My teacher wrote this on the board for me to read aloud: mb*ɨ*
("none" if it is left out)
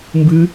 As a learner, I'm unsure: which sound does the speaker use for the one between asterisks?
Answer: ɨ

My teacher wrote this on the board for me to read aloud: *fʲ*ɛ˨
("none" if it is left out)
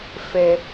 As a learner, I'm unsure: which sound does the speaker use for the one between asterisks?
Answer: f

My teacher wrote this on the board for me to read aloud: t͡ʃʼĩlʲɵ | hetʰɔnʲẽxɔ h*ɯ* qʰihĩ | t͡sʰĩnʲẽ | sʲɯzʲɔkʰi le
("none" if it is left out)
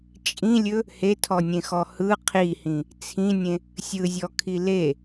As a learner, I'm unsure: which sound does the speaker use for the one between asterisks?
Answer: ɯ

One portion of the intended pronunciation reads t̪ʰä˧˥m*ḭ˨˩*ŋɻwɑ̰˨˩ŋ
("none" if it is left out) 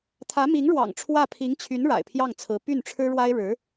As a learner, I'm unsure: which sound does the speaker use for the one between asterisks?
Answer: i˧˥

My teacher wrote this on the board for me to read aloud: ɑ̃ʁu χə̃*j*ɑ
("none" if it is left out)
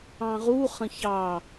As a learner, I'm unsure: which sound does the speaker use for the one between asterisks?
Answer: ç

